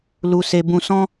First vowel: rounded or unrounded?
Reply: rounded